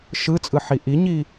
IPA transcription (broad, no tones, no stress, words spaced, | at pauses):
ʃɯt͡sʼɯħi ʔiɲi